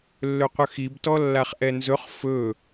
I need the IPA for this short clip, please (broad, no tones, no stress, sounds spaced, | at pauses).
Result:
lː ɵ qʷ ə x i b t ɔ lː a χ ʔ ɛ n z ɵ χ f ɵ